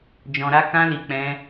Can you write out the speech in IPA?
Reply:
d͡ʒɔ̃˧ɾa˦ kã˦li˧ k͡pɛ̃˦

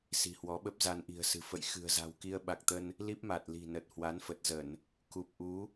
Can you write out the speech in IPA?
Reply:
si̤˨˩hwɔ˨˦ɓə˦˥p̚ za˧n ʔi̤˨˩ə̯sɨ̤˨˩ fə̰˧˨j xɨ̤˨˩ə̯za̤˨˩wki˧ə̯ ɓa˨˩k̚t̪ə˧n | li˦˥p̚ ma˨˩t̚ li̤˨˩ nə˨˩t̚ hwa˨˦nfə˨˩t̚zə˧˩˨n | ku˨˩p̚ ʔu˨˦

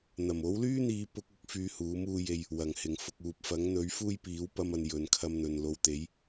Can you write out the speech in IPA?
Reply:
n̪ɐ˨˩mo˨˥wlyː˥n̪iː˨˧ pʊ˥k̚ʊ˨˥k̚ fyː˧huː˨˥muː˧je˧j | wɐ˨˩ŋhɪ˨˩ŋfʊ˨k̚ uː˨p̚ fɐ˨˥ŋn̪ɵ˨˥ɥ fuː˥jpiː˨˥wpɐ˧mɐ˨n jɵ˨nkʰɐ˧mn̪ɵ˨n lo˨wt̪e˨˥j

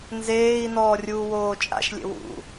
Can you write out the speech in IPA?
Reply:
nzeːi̯nɔː rʲuːwoːt͡ʃʼa̰ʃlʲḛ wṵ

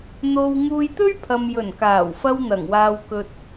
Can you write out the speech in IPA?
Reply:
n̪o˧w ŋuː˧jt̪ɵ˥ɥpʰɐ˨m jɵ˨˩nkaː˨˩wfɐ˧w n̪ɐ˨˩ŋwaː˧wkɵ˧t̚

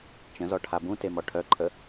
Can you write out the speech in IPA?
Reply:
t͡ʃə̃zɔ ʈʰabũtemɔ ʈʰœǃʰə

